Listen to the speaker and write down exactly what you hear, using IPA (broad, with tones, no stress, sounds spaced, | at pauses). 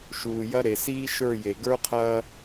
ʃ uː˨ j ɐ˦ ɾ e˨ s iː˦ ʃ ə˞˦˨ j e˨ ɡ ə˞˦ qʰ ɐː˦